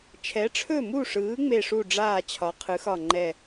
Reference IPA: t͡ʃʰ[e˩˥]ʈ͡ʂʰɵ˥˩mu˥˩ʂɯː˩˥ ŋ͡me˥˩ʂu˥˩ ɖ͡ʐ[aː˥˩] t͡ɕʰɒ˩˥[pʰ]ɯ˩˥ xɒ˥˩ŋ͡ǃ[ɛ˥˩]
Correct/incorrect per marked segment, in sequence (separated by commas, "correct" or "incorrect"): incorrect, correct, incorrect, correct